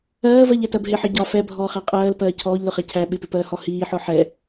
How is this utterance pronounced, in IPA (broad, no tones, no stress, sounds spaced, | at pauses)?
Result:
ɜː v ɜ ʎ ɛ t ɜ b ɦ ɪ ħ ʌ ɟ ɒ f ɛ bʱ ɔː χ æ qʼ ɜː l p ɜː cʰ ɔː ʎ l ʊ χ ɛ cʰ æ ɓ ɪ p ɪ p ɜː h ɔ h iː ħ ɔ ħ ɛ